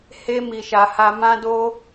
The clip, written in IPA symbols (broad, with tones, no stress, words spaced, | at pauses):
he˧mi˨ʃa˨ ha˧mã˦ do˦